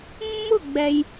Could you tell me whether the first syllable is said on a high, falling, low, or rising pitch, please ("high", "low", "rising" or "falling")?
falling